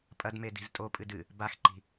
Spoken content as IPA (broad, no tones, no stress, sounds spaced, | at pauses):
pʼ ɐ d m e d i̤ z tʼ o pʼ ɨ d ɨ | b a x ǃ i̤